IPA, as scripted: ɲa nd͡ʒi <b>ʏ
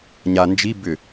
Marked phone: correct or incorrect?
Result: correct